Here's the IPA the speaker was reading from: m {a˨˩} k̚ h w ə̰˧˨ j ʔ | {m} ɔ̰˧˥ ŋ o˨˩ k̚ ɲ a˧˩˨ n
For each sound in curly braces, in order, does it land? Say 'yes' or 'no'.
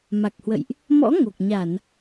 yes, yes

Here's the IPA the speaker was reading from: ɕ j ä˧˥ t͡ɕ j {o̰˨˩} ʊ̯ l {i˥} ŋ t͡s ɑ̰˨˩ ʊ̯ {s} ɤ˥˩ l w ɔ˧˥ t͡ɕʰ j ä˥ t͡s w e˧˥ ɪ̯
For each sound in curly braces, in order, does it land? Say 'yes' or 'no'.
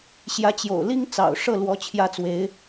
yes, yes, no

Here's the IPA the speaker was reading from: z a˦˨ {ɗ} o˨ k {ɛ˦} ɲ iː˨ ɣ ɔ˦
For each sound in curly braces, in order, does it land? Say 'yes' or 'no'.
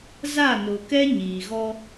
no, yes

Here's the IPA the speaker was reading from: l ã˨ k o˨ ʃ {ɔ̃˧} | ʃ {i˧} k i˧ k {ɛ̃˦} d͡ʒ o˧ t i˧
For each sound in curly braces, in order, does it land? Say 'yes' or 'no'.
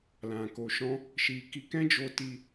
yes, yes, yes

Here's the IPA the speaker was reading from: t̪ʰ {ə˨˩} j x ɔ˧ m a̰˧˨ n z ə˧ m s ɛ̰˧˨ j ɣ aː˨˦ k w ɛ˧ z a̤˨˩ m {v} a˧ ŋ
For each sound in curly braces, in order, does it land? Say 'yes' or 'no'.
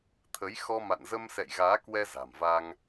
no, yes

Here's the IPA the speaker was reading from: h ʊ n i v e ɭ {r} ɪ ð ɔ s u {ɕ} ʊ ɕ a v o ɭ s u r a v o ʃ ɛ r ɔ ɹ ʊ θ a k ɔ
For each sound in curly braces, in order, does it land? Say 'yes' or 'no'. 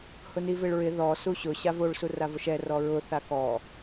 no, yes

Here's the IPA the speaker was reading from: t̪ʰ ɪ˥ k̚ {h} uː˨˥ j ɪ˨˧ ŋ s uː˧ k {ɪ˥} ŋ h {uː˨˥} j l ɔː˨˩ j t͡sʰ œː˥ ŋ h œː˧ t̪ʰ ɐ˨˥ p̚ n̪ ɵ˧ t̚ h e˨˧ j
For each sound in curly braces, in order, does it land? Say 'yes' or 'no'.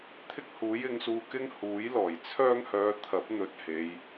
yes, yes, yes

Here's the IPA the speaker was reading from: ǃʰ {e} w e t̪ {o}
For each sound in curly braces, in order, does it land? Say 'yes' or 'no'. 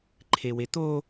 yes, yes

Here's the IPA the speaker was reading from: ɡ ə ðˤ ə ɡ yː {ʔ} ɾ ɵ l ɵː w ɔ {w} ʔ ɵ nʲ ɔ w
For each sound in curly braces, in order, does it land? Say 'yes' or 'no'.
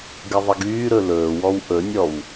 no, yes

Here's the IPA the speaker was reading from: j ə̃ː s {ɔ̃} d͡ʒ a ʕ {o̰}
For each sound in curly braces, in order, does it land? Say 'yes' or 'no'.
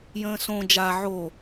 no, no

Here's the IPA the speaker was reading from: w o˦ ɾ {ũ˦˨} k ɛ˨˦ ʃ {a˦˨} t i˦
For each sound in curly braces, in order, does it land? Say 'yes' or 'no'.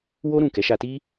yes, no

